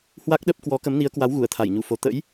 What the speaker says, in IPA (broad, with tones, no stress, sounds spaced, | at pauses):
h w a˦˥ k̚ ɗ ə˦˥ p̚ k w ɔ˨˦ k ə˨˦ m n i˨˦ ə̯ k w a˨˦ w ɣ u˧˩ ə̯ t̪ʰ a˧˩ j ɲ u˧˩ f o˨˩ t̪ ə̰˧˥ j